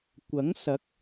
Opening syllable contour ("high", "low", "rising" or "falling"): rising